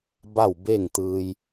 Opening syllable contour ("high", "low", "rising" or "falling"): falling